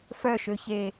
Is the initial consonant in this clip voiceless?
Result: yes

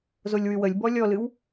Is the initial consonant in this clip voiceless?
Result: no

